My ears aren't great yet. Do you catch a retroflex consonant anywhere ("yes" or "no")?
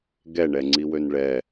yes